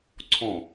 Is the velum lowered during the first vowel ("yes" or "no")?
yes